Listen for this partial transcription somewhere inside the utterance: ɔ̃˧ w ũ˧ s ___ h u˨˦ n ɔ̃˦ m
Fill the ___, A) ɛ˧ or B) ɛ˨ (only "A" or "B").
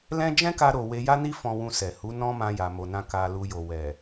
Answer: B